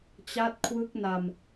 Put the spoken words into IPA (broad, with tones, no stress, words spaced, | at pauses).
t͡ɕa˦˥t̚kʰwɯ˦˥k̚ na˧m